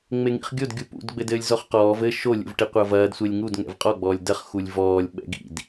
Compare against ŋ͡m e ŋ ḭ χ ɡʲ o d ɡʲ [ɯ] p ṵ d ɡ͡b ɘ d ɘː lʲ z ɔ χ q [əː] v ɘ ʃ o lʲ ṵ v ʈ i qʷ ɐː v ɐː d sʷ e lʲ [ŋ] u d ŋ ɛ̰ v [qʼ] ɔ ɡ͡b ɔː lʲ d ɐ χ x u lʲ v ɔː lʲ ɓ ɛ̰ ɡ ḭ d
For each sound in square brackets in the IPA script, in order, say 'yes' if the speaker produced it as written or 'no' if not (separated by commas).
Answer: no, no, yes, yes